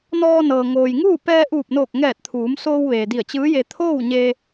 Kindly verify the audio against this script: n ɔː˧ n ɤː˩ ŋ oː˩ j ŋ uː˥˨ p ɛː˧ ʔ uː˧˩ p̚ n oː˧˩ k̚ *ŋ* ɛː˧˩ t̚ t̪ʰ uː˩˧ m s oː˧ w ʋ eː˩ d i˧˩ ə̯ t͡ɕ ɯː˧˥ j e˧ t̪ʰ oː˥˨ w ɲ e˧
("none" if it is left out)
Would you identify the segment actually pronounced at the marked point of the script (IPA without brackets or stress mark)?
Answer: ŋ